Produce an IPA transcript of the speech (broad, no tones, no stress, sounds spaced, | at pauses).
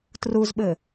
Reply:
t r u z ɓ ɘ